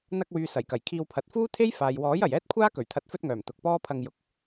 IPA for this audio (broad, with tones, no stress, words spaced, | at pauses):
n̪ɐ˧k̚wyː˨ sɐ˨˩jkɐ˨˩jkʰiː˧wpʰɐ˨˥t̚ fuː˥t̪ʰe˥jfaː˨j wɔː˨˥jɐ˨˩j ɛː˥t̚kʷʰaː˥ kɵ˨˩ɥt̪ʰɐ˨˥t̚ fɵ˥t̚ŋœː˨˩m t̪ʊ˨k̚pɔː˥pʰɐ˧ŋ jʊ˨˥k̚